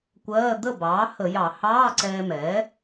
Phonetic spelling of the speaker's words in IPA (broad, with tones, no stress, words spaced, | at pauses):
kʷɜː˧˥˧ d̪ə˥˩bɑː˩˥hə˧˩˧jɑ˧˩˧ hɑː˧˥˧ǀɛː˧mɛː˩˥